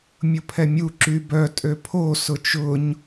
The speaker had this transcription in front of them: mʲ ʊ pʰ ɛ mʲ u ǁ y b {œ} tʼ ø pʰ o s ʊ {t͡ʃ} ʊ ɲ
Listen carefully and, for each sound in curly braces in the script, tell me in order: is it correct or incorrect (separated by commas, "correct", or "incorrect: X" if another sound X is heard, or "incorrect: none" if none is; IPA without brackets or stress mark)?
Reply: correct, correct